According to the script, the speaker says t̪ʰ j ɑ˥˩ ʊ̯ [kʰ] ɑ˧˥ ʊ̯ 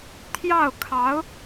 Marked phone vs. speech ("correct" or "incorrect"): correct